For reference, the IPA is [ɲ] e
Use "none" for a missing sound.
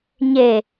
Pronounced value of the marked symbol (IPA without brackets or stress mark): ɲ